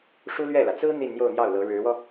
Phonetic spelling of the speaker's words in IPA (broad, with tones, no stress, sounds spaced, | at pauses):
ʂ u˥ l ɥ ɛ˥˩ l ä˩ t͡s ɹ̩˥ n̪ i˥˧ n n̪ j o˥˧ ʊ̯ n̪ j ɑ˥˩ ʊ̯ l ɤ˧˥ ɻ ɻ̩˧˥ w ɔ˧